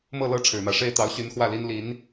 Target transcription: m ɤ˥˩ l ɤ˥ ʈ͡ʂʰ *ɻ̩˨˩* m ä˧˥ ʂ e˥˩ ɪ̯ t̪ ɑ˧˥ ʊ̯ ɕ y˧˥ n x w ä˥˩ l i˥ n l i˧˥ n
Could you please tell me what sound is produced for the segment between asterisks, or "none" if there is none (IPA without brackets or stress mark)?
ɻ̩˨˩